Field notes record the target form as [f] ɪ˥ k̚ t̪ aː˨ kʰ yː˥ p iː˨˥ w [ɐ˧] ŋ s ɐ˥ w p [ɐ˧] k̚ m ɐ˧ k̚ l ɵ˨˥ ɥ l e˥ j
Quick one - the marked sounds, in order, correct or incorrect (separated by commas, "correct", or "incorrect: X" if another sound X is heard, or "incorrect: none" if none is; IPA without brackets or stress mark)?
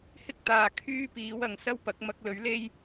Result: incorrect: h, incorrect: ɐ˨, incorrect: ɐ˨˥